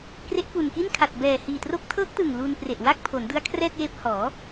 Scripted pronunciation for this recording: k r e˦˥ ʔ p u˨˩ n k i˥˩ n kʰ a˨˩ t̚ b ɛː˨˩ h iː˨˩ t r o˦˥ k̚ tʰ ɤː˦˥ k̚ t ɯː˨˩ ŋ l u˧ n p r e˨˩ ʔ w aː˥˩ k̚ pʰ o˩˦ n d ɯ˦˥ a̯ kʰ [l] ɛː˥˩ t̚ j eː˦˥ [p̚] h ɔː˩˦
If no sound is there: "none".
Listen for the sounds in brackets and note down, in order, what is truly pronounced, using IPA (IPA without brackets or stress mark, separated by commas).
r, p̚